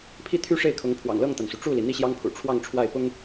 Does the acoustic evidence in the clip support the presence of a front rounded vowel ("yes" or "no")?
yes